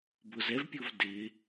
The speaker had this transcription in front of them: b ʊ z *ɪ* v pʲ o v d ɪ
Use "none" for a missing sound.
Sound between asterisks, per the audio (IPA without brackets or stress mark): ɛ